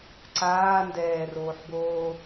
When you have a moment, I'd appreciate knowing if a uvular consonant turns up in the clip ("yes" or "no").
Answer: no